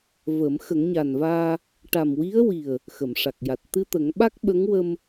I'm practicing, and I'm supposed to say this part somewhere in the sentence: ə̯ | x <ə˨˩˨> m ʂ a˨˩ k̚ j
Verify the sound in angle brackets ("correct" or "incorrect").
correct